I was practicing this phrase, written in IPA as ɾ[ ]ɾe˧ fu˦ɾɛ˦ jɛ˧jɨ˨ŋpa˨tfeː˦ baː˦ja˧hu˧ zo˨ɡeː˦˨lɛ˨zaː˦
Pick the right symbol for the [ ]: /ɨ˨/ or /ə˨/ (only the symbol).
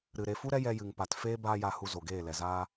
ɨ˨